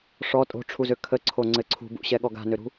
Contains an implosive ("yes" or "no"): yes